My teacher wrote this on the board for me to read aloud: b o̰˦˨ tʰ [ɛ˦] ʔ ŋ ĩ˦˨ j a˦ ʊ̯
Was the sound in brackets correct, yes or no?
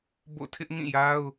no